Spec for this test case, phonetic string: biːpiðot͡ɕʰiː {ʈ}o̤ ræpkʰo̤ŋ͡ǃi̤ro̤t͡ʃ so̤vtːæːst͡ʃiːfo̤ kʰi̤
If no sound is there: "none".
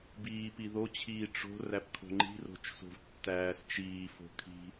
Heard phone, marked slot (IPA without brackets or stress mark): ʈ͡ʂ